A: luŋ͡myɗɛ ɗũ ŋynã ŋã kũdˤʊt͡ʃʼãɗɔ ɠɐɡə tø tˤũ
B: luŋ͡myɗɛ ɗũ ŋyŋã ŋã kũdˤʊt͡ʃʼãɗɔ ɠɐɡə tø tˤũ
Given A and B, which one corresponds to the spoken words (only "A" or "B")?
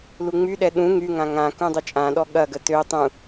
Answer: B